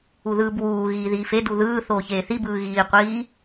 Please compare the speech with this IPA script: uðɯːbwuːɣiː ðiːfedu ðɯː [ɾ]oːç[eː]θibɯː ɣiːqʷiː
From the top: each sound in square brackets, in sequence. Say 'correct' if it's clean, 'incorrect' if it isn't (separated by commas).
incorrect, correct